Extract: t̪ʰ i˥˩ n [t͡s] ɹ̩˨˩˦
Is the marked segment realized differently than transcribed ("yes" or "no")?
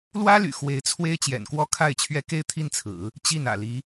yes